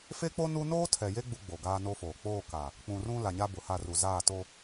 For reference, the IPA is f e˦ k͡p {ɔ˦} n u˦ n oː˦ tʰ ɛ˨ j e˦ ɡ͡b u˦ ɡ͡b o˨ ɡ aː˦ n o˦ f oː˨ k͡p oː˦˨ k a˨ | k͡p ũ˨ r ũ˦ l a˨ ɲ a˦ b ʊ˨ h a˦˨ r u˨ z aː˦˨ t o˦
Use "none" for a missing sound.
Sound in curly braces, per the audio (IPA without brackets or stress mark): o˦